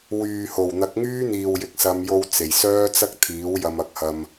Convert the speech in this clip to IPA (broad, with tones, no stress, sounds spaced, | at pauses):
w yː˨ h o˨˩ w n̪ ɐ˨˥ k̚ ŋ yː˥ n̪ iː˨ w j ɪ˨ k̚ s ɐ˨˧ m j o˧ w t͡s e˨˩ j s œː˥ t͡s ɐ˥ k̚ t̪ʰ iː˨˥ w j ɐ˧ m ɐ˧ k̚ h ɐ˧ m